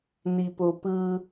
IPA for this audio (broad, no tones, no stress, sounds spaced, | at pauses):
n i p o p ɯ